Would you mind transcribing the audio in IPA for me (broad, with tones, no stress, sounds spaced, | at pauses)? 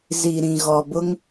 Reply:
z i˨ ɾ ĩ˨ ɣ ɔ˨ b ʊ˦ ŋ